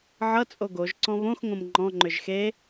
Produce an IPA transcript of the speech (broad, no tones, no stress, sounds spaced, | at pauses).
ʕ ʌ t͡sʼ o ɡ o ʒ ǀ ɔ̃ β õ x ŋ õ m ŋ͡ǃ ɔ̃ ŋ͡ǃ ʏ ʒ x e